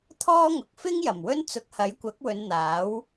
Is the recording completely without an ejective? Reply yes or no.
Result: yes